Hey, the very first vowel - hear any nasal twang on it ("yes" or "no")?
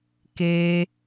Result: no